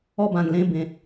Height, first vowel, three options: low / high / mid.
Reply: mid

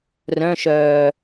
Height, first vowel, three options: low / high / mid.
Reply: mid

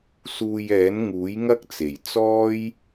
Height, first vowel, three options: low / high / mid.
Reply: high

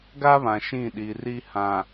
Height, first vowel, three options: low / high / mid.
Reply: low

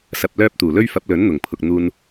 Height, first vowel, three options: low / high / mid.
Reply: low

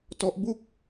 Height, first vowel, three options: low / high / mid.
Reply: mid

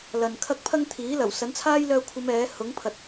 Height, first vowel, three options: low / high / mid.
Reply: low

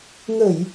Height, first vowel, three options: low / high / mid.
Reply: mid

